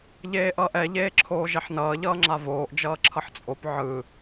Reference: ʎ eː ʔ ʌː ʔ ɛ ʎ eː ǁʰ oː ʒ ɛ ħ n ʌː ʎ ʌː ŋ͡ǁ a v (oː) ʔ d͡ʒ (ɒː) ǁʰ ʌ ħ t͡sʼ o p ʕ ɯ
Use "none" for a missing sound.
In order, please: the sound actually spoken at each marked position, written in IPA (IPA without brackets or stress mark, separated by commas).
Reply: oː, ʌː